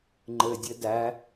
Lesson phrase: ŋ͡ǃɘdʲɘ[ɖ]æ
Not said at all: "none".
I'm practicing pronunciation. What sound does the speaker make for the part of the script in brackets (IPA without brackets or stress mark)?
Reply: d